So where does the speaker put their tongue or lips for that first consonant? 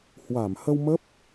throat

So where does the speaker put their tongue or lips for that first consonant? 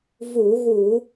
lips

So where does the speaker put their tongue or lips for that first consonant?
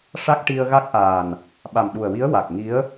retroflex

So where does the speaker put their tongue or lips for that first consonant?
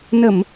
tongue tip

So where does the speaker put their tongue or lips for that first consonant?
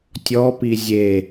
tongue tip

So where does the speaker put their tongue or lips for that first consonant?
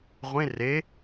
uvula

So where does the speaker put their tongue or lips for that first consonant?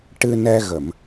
retroflex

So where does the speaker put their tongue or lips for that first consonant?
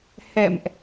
throat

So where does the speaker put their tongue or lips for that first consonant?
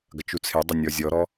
velum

